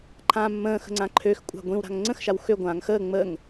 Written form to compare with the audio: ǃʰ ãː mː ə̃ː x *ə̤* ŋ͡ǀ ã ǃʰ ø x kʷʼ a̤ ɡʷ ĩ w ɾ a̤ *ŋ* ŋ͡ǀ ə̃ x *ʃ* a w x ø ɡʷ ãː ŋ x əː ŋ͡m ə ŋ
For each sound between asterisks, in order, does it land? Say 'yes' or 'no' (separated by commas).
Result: yes, yes, yes